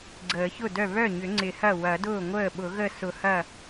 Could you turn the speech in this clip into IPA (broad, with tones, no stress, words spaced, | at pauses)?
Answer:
ɡ͡ǀəː˨˩˦çʊ˥˩dœ˥˩ βœ˥˩ɲʏ˨˩˦ ŋ͡ǀɪ˨˩˦hɐ˥˩ wɐ˨˩˦dʊː˥˩ŋʷəː˥˩ɓʊ˨˩˦ ɣə˥˩sʊ˨˩˦hɐ˥˩